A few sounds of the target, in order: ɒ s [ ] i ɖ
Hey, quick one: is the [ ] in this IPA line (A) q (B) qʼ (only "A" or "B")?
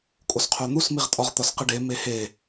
A